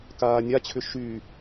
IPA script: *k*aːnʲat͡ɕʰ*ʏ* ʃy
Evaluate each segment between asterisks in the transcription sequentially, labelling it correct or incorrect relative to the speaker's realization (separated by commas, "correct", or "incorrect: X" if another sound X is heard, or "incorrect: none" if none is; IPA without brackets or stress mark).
correct, correct